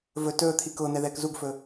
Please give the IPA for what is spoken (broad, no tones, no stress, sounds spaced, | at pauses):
v ɵ t ɵː t̪ʰ i k ʊː n̪ ɛ ð ɛː k z u ɡ f ɵ